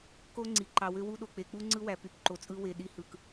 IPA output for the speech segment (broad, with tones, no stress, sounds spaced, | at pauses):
k o˦ ŋ͡ǀ i˨ ǃ ɑ˨ w ø˦ w u˦ ɗ o˨ k͡p e˨ k͡p u˦ ŋ͡ǀ ɯ˦ w æ˨ p y˨ p ǃ o˨ t͡sʼ ɯ˦ w e˨ ɗ i˦ h ɯ˨ k